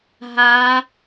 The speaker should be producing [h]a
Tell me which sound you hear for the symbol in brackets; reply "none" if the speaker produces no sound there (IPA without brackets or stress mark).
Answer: ɦ